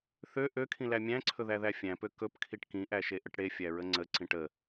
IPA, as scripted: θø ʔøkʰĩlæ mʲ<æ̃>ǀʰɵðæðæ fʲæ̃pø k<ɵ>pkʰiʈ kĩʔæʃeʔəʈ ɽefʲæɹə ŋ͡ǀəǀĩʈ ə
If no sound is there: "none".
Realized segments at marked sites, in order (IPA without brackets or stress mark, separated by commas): æ̃, ɵ